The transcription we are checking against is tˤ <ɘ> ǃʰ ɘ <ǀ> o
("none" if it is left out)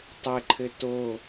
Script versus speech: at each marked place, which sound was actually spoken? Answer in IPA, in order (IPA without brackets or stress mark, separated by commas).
ɘ, t